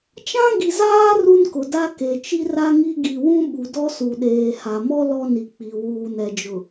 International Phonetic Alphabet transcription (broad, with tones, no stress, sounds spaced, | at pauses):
t͡ʃ ã˦ ɡ i˨ z aː˦ r u˦ n k ʊ˨ d a˦ k e˨ t͡ʃ i˦ r a˦ ŋ i˦ ɡ i˨ w ũ˦ ɓ u˨ d ɔ˦ s u˨ ɗ eː˨ h a˨ m ɔ˦ l ɔ˦ n i˨ k͡p i˨ w uː˨ n ɛ˨ d͡ʒ ʊ˨